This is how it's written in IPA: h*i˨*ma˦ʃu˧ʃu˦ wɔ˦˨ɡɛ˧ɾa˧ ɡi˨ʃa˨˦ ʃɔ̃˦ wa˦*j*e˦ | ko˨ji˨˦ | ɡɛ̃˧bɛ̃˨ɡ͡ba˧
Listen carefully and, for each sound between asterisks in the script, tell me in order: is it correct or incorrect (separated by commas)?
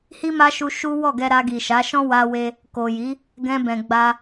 incorrect, incorrect